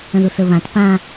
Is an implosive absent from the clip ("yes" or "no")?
yes